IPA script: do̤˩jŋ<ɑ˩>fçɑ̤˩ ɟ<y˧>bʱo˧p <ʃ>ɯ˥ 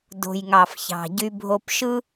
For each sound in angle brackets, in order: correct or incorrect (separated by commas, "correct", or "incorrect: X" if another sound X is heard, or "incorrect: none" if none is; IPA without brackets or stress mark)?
correct, correct, correct